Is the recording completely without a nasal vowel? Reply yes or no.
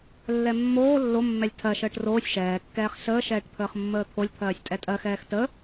yes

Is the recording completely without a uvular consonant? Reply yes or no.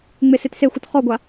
no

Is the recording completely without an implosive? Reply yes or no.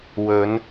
yes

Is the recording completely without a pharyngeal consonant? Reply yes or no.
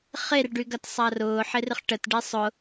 no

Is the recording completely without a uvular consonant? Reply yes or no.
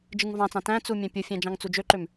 yes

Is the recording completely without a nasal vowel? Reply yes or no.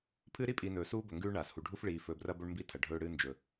yes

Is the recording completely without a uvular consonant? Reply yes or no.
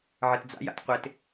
no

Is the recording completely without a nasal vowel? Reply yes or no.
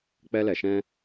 no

